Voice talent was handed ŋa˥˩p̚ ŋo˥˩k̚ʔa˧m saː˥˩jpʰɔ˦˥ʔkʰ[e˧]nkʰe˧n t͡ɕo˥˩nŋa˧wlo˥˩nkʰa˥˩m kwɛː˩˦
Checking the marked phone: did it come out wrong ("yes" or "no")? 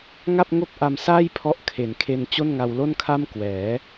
yes